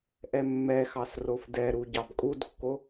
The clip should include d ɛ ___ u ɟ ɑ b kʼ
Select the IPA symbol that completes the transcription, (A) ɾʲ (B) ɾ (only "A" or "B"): B